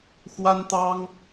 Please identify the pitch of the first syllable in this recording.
high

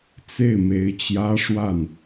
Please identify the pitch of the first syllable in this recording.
falling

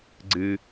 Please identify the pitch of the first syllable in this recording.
high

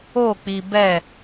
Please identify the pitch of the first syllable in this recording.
falling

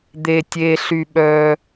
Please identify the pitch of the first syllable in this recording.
low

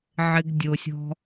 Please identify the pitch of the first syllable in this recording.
high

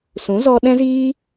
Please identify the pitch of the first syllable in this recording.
rising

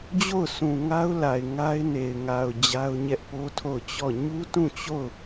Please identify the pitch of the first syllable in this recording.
falling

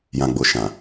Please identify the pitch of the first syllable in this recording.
low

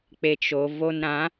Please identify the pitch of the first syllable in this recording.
low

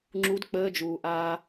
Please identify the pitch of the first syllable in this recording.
rising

